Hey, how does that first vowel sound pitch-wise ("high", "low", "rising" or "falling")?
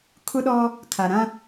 high